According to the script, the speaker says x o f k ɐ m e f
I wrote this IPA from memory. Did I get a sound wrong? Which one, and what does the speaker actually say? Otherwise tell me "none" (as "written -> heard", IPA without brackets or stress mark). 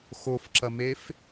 k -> ǁ